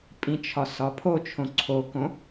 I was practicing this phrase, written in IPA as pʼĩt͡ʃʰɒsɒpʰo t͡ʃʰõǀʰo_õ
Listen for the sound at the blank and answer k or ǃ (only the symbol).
k